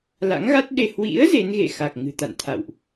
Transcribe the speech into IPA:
la̰˧˥ŋɣa˦˥t̚ɗe˧ hwḭ˧˥ə̯ ze˨˦nɣḛ˧˨xa˨˩k̚ ŋɨ̤˨˩t̪a̰˧˨nt̪ʰa̰˧˨wʔ

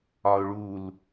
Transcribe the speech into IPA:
ɒʊ̯ɭul

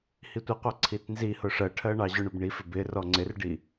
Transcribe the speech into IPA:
hitʷiqʷɑ ǀʰitnzihʊ ʂɜʈʰɜ ɳɑʑʊɳʊb ɳifɪ bɪ rɔŋ͡ǀɪrɖi

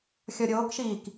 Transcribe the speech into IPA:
xʲɔɾʲoːkʃiːk

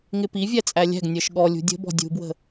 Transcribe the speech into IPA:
ŋɪpi vʲæt͡sʼælʲæ̤ɡ nʲɜʃɠɔ lʲṳdʲə̤bɔ̤ dʲṳbwə̤

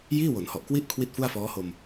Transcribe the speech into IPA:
jiː˥˩wo˩˦nhɔ˨˩ʔkwi˥˩ʔ kʰwi˥˩t̚fu˥˩a̯fɔː˦˥ho˧m

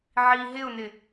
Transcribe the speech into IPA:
ʕi ɦɪʊ̯nɪ

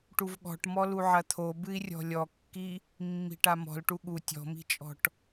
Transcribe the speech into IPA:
ʈuvɠɔ̤ʈ mɔluʕɐt̪ʰo bɨi̯rʲɔ̤lʲɔkːi | mːi̤ʈamɔ̤lʈu ɠu tʲɔ̤mi̤t͡ʃʼɔ̤ʈ

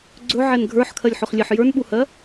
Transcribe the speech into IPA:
ɡ͡ǀɵʕɛn ɡʱə˞ħkʰɜlʲħɵχlʲeħ jə˞nɓuhɜ

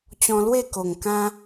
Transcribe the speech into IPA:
t͡ɕɔ̃˧lwe˥˧ko˨˩ŋ kã˦

